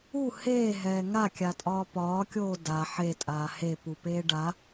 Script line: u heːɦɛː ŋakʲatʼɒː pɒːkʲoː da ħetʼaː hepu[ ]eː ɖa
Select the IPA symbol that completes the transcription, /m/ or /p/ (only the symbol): p